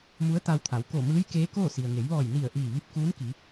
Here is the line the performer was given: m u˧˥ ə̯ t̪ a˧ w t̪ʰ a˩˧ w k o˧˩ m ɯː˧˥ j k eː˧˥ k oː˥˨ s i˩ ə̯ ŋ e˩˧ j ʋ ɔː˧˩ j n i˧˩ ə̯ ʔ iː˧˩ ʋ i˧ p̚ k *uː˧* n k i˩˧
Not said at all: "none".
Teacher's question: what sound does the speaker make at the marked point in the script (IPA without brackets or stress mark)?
uː˧˥